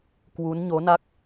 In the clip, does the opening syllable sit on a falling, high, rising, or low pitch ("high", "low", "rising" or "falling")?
rising